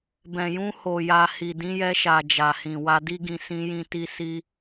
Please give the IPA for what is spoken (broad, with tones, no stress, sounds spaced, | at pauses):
b ɛ̃˨ j ũ˧ h o˨ j a˨ h i˨ d ĩ˨˦ j ɛ˧ ʃ a˨ d͡ʒ a˨ h ĩ˨ w a˧ d i˦ ɡ ĩ˧ s ĩ˧ j ĩ˧ t i˧ s i˧